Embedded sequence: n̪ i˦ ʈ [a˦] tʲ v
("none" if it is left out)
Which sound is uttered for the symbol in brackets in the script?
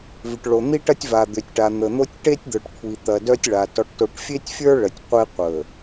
ɐ˦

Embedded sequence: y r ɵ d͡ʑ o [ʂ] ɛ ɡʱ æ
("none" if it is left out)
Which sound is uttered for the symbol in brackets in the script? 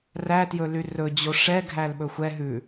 ʂ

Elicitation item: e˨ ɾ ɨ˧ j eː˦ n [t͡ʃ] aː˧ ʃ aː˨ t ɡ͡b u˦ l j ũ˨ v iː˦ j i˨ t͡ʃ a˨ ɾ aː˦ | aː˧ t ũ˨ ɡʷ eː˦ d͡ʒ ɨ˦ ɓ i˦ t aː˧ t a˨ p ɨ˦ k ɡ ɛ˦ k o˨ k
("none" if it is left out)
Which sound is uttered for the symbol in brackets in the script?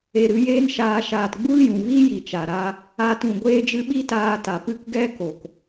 ʃ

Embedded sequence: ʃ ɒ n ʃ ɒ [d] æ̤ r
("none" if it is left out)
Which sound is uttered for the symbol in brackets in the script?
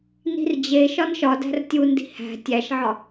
d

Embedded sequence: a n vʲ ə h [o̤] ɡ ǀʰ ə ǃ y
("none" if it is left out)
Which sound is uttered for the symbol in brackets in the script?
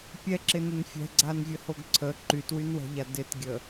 o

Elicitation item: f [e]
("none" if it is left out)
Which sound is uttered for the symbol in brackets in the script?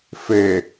e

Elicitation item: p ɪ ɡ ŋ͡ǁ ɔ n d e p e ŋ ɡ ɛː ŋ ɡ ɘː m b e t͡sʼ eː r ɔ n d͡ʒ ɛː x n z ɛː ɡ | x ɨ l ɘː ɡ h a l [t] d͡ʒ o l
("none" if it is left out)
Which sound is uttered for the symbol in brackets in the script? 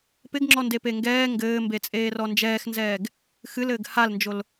n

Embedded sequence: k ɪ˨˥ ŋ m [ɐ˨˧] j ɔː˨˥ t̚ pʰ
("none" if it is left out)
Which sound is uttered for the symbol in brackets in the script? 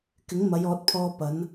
ɐ˨˧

